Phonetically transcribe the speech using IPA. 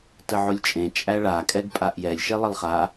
təʕolʲt͡ʃʼẽ t͡ʃʼæɭa kʼɛɡpʼaʔjɛlʲ ʃelˠəlˠχa

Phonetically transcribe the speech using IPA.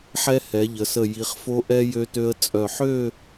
ħɛ˧ hɛ˩˧ʎə˩˧sə˧˩ ji˩˧χfo˧ʔɛ˧ jø˧tø˧ə̯t͡sʼœ˧˩ ħø˥˧

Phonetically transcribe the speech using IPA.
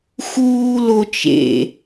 xuːlot͡ʃḛ

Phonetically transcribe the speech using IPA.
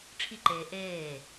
ʈ͡ʂʰiǃeː ʔeː

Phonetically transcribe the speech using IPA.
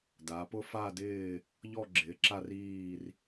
da˩˧ pʊ˦˨fa˦˨dɪː˦˨ | ʎɔ˦˨ɡ͡ǁɪː˩˧ǁa˦˨riː˦˨r

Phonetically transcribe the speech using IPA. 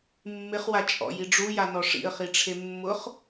mːɪχwat͡ʃʼɔ̰ji ɖ͡ʐujanɔ ʂḭə̯χiʈ͡ʂʰe mːʊχ

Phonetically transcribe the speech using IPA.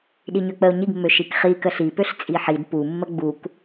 ɗiɲøk͡pəʊ̯ ɲiɡmːø ʃikχi kəɬipøɬ t͡sʼiħid pumːə ɡ͡buk

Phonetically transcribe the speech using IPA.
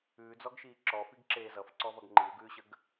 ʉːd͡zɔɡʃiː ǁɔfiɡǁeː zʌfǀɔvʌɡ ŋ͡ǃiwɡʉːɕəɡ

